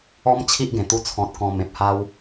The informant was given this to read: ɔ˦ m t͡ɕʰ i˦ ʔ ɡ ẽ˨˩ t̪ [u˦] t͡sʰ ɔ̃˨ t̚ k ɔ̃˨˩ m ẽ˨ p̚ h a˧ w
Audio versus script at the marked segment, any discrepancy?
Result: yes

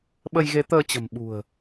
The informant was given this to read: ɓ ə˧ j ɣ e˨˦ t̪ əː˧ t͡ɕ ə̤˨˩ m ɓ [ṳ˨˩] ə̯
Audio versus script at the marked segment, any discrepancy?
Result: no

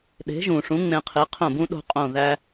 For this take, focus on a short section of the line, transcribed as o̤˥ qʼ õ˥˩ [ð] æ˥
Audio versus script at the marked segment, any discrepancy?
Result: no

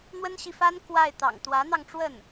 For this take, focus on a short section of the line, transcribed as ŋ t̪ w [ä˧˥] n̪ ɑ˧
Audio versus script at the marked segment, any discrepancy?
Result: no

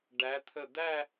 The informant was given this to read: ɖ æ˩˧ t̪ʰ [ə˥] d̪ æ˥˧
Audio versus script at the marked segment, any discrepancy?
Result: yes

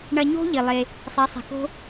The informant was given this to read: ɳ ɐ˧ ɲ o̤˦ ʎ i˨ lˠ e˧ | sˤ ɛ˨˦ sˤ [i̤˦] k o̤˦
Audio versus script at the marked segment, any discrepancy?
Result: yes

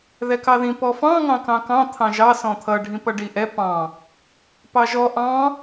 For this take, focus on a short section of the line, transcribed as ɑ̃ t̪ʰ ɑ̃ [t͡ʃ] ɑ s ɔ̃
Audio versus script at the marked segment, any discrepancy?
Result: yes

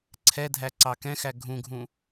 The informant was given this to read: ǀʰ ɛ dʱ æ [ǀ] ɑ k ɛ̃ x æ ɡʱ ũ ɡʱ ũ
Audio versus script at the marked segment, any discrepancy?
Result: no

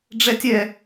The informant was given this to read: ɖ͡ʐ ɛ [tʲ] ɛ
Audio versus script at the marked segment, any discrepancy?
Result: no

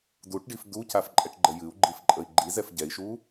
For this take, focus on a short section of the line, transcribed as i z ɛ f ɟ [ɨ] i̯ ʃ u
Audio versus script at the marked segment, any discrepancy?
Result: yes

